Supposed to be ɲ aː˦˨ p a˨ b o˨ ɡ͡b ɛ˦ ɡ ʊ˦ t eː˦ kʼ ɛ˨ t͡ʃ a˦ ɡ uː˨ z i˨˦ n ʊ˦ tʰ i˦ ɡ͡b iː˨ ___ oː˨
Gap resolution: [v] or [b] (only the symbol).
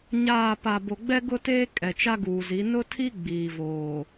v